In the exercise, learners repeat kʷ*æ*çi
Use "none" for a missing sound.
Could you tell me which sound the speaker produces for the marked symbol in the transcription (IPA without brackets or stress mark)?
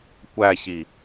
æ